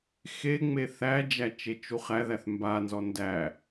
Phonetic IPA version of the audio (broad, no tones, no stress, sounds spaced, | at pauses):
x e ŋ͡m e θ æ d͡ʒ æ t͡ʃ e t͡ʃ u χ æ ð æ θ m b a n z ɔ n d æ